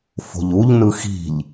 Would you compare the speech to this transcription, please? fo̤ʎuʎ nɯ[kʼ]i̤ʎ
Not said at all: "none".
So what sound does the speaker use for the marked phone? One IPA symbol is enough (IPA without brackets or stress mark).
x